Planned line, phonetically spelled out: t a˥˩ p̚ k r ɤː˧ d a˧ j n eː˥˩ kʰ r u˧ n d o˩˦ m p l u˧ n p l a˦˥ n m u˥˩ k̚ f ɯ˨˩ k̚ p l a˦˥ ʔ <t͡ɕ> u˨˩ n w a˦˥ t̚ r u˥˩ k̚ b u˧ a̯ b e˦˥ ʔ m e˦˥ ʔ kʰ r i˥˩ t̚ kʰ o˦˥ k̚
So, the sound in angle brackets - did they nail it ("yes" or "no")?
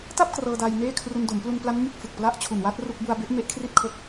no